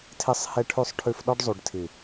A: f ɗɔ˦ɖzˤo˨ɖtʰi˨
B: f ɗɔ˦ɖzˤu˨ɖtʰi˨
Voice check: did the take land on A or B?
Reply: B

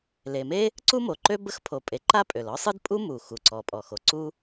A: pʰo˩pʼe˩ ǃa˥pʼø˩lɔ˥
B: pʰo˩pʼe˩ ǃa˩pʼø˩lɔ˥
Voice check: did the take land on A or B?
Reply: A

